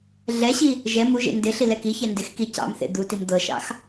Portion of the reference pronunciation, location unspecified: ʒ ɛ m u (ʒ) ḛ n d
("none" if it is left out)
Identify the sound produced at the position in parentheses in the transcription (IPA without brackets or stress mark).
ʒ